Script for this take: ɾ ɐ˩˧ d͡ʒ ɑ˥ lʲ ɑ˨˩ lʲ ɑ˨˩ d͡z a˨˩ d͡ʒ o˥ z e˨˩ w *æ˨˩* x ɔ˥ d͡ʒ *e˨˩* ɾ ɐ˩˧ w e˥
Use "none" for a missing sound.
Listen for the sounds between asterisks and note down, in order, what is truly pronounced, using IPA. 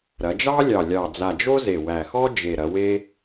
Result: æ˨˩, e˨˩

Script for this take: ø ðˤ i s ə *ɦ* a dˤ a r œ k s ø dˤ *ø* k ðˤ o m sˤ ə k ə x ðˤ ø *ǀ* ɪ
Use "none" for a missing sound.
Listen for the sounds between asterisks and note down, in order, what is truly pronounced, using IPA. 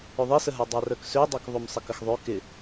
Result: ɦ, ø, k

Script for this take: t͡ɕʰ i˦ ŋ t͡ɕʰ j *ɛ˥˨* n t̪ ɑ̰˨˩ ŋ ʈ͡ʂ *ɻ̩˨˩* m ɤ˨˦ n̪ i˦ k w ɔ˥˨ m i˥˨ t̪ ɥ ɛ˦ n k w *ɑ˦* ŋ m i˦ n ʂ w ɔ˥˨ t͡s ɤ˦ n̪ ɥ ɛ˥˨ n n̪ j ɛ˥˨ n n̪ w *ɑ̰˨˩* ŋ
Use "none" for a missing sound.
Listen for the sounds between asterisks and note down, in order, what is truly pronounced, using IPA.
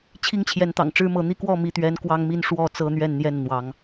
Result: ɛ˨˦, ɻ̩˦, ɑ˦, ɑ˨˦

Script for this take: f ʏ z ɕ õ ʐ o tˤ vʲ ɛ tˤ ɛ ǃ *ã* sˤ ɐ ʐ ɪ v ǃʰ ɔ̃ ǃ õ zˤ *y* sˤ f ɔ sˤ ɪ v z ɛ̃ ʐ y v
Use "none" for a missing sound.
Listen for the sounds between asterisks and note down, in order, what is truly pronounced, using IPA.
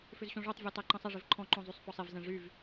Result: ə̃, y

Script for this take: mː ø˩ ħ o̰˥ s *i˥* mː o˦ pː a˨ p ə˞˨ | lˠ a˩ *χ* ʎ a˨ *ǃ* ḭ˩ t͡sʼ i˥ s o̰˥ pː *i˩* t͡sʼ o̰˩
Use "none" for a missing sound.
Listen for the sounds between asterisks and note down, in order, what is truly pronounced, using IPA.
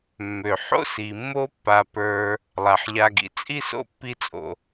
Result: i˩, ħ, ɡ, i˦

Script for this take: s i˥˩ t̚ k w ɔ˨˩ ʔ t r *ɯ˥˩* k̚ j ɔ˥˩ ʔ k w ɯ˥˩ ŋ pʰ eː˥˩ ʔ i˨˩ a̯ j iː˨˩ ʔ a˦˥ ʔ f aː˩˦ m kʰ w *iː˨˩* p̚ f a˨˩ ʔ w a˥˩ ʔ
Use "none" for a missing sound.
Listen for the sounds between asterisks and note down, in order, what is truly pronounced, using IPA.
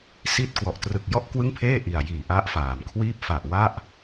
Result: ɯ˨˩, iː˥˩

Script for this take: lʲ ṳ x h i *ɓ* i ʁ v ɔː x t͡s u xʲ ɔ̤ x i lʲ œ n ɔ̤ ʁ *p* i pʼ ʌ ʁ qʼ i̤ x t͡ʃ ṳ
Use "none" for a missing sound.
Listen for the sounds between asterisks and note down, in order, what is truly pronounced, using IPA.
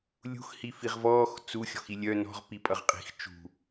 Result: f, p

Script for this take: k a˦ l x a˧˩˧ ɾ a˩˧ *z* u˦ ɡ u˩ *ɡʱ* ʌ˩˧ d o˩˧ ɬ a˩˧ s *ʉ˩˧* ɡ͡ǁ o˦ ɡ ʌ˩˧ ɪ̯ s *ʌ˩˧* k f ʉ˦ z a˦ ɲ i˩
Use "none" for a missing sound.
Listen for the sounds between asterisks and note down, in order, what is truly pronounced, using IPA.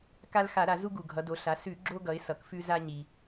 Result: z, ɡʱ, ʉ˧˩˧, ʌ˩˧

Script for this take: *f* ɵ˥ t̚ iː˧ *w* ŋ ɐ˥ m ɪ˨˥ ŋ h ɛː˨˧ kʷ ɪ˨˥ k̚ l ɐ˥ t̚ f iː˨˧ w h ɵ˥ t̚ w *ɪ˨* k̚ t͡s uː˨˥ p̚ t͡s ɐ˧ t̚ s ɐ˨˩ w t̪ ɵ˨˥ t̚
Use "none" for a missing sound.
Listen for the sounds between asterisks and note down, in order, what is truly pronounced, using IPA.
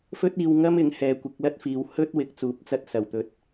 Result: f, w, ɪ˨˥

